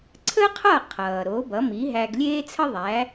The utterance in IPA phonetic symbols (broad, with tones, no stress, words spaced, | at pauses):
ǀʰə˥qʰʌ˥˩qʰʌː˩ ɾo˩˥bʌ˩˥ mi˩˥ɦæ˧ɡ lʲeː˥t͡sʰə˥ðˤæ˩˥